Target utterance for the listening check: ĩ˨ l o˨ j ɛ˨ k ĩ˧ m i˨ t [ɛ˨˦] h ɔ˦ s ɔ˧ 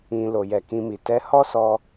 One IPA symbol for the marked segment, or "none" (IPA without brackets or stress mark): ɛ˨˦